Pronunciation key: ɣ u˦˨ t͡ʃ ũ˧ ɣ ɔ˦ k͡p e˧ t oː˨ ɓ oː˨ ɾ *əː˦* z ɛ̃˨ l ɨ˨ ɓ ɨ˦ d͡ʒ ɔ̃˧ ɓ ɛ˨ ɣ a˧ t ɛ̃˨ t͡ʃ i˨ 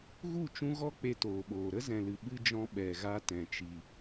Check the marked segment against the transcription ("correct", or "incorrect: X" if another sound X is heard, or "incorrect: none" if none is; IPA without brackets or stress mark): incorrect: ə˦